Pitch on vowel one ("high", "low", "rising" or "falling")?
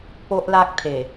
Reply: high